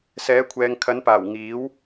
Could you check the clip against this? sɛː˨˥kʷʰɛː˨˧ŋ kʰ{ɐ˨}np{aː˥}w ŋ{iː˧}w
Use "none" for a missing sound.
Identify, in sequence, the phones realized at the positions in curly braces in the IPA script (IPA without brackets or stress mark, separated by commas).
ɐ˨˥, aː˨˩, iː˨˥